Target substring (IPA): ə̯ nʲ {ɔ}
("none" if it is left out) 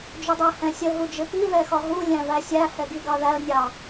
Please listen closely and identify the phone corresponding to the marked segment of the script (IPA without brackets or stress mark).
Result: ɑ